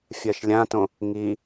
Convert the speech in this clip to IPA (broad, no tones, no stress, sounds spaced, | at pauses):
fʲ ɜ ʃ lʲ ã t õ | ŋ i